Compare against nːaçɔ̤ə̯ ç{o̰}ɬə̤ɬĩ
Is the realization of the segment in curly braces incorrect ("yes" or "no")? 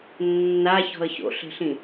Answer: no